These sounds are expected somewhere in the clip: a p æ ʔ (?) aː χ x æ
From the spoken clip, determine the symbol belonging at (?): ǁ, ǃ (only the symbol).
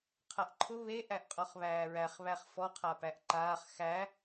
ǃ